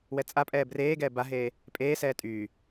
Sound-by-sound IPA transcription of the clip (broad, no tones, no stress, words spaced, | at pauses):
wɛt͡sʼapʼɛː breːɡɛː baɦeː | pʼeːsɛː tʼy